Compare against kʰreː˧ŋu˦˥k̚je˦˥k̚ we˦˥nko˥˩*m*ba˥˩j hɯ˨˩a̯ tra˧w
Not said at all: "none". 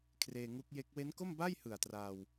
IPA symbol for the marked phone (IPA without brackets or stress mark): m